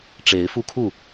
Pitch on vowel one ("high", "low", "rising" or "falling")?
rising